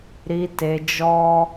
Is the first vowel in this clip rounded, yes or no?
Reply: no